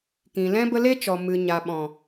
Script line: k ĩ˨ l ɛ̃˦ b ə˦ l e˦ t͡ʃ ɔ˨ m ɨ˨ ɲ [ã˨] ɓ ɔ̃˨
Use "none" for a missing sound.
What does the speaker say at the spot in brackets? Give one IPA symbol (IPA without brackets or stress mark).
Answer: a˨